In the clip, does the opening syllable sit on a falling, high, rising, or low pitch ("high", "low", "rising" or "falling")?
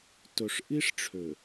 low